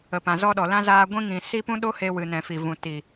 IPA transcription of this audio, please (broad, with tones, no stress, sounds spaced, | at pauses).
ə˨ p ã˨ z ɔ˧ ɗ ɔ˨ l ã˦ z aː˧ ɡʷ ĩ˦ ŋ ĩ˨ s i˦ p ũ˦ ɗ o˦ h e˧ w ɨ˨ n ɛ̃˨ f i˨ v ũ˨ t i˨